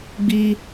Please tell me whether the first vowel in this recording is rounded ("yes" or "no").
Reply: no